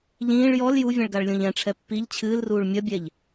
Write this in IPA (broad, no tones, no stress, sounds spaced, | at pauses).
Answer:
ʎ ĩː ɭ j ɔ l j u vʲ ɛ̃ ɭ ɡ a ɭ lʲ õ ʎ ɛ̃ ʈ͡ʂʰ ɛ pː i ʎ t͡ɕʰ ɨː l r uː ɭ mʲ ɐ bʲ ɛ ʎ